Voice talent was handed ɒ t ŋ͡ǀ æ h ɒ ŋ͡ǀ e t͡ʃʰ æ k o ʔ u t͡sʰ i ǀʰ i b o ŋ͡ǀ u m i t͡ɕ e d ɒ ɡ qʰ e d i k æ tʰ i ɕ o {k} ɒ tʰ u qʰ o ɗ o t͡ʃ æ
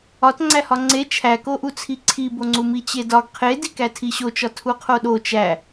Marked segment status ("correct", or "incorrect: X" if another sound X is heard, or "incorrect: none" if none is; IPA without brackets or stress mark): incorrect: t͡ʃ